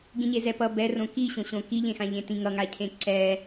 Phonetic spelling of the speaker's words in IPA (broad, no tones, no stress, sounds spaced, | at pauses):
ɡ ĩ ɲ e z ɛ p ʌ b ɛ r õ k i ɕ õ ɕ õ k i ʎ ẽ x ã ʎ ẽ t ĩ ŋ ʌ ŋ a cʰ ẽ ǀ ɛ